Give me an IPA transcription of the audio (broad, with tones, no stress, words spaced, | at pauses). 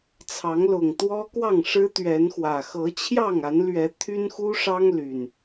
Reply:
t͡sʰɑ˨˦ŋlʊ˨˩ŋt̪wɔ˦kwɑ˥˨ŋ ʂɻ̩˦t̪ɥɛ˨˦nxwä˨˩ xɤ˨˦t͡ɕʰjɑ˥˨ŋa˨˦nlɥɛ˨˦ t̪ʰy˦nxu˦ʂɑ˦ŋ ly˨˩n